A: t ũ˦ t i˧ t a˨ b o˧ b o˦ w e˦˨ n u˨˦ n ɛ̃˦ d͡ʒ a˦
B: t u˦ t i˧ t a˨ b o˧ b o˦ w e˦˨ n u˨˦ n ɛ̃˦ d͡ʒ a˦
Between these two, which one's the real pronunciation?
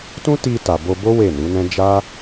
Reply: A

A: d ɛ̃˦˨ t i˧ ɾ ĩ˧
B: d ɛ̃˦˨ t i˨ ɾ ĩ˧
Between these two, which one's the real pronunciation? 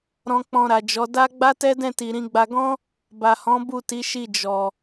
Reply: B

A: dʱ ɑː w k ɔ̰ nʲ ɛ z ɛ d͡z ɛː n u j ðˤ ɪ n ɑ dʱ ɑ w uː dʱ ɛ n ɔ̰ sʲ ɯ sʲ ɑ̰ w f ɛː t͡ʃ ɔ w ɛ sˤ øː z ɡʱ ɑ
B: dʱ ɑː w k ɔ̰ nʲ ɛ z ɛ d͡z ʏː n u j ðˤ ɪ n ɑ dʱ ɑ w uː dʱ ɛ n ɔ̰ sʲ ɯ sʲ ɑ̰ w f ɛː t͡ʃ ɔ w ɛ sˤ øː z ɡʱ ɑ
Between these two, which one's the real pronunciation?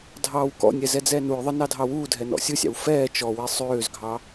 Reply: A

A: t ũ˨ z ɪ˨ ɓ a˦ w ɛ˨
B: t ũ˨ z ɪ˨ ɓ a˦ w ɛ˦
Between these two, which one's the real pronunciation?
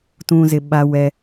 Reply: B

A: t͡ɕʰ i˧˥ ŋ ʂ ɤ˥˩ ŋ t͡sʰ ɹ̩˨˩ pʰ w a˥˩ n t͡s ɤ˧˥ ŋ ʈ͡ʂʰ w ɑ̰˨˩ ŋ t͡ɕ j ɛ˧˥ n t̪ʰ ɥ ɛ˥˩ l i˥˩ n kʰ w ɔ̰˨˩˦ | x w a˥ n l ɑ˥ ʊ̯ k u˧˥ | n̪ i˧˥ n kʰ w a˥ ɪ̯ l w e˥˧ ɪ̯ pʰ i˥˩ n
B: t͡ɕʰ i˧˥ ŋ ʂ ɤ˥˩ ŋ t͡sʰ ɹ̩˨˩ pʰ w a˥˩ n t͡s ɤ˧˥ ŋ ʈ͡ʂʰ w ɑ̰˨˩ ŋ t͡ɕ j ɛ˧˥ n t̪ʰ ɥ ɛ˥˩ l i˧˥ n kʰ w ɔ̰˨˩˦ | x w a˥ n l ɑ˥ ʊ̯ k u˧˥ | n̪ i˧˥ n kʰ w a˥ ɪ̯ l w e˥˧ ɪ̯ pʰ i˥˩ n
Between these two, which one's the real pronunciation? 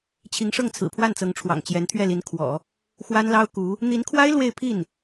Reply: B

